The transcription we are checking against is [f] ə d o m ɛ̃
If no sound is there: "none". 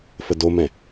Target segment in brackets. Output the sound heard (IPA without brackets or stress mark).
f